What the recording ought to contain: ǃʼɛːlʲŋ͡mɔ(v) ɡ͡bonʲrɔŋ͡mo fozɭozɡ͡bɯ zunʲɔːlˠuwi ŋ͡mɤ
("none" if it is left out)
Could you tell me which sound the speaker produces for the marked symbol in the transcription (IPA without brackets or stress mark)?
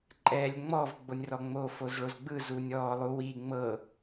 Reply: v